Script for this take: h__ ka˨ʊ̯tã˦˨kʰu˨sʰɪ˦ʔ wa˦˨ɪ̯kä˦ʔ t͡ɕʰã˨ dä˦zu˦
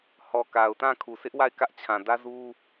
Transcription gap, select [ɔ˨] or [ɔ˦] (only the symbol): ɔ˨